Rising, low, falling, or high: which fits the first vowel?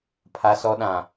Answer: high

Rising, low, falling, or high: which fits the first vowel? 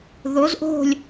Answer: rising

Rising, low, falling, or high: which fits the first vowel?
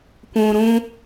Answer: low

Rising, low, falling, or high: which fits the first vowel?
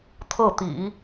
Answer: falling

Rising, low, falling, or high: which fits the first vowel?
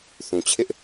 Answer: low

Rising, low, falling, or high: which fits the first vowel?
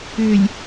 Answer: low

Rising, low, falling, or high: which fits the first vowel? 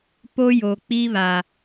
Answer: high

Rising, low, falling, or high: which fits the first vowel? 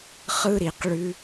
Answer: high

